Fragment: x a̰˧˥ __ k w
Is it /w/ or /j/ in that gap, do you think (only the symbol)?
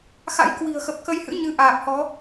j